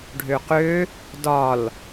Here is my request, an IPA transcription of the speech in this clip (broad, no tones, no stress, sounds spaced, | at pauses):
ɖʱ ø q ø | d ɒ l